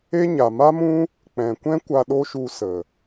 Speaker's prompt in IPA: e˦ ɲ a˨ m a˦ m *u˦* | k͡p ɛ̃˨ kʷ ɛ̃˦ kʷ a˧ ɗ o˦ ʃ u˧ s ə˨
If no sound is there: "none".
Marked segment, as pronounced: ũ˦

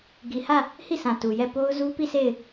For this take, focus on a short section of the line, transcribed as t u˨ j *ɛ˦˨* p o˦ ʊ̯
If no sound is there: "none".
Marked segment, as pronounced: ɛ˦˨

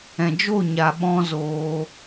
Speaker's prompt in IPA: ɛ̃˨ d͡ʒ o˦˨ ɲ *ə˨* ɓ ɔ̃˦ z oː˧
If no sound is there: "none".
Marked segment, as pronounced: a˨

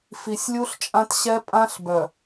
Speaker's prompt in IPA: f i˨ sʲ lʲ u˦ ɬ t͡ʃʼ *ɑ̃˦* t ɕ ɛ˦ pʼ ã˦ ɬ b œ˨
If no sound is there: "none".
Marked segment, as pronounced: ã˦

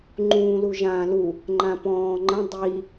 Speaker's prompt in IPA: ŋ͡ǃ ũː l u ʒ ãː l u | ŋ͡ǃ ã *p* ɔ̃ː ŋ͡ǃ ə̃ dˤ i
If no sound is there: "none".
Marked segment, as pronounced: p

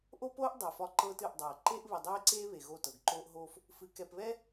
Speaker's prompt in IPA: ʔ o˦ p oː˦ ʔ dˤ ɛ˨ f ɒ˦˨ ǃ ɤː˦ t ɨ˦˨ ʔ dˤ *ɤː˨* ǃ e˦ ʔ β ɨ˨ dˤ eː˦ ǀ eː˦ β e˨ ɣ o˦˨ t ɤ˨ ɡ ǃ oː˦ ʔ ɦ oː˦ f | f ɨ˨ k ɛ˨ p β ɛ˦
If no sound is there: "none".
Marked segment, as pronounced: ɤː˨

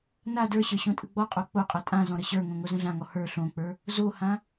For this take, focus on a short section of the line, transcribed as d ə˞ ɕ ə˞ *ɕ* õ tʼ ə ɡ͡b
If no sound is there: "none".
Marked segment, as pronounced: ɕ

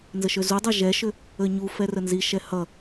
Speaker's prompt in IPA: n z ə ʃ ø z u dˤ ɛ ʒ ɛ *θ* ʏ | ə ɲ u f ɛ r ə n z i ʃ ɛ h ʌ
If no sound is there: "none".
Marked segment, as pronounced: ʃ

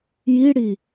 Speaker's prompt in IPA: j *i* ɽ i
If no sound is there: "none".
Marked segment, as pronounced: i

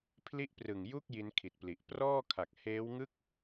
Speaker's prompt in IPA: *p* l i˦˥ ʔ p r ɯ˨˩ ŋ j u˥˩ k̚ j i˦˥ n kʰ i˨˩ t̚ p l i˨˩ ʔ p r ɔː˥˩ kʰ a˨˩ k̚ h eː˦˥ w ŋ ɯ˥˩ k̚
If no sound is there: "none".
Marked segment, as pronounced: pʰ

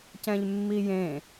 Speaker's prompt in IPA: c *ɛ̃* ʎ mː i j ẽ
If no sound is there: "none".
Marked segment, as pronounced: ɛ̃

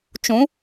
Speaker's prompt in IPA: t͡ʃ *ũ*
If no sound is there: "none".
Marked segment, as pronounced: ũ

